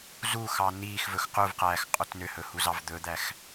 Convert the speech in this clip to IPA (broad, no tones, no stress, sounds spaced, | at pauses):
z u x ɑ n iː x v ɵ x q u v q æː x qʼ ɵ t n ø h ɵ h u z ɑ v d̪ ɵ d̪ æ x